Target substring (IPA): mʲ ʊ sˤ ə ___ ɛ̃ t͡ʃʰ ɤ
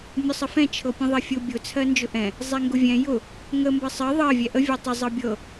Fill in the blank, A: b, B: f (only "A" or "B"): B